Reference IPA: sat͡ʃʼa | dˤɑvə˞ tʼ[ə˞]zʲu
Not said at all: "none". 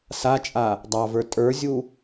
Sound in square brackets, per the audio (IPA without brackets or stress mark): ə˞